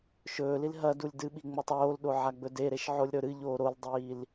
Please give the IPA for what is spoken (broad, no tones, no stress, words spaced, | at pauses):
ʃɵːlil ɦɐ dulʲdɨɓi ŋ͡motˤoːlɗo ʕaɡ͡bɵdeɾeʃ ʕolʲɾɵɾɨʎoː ɾoldˤiːl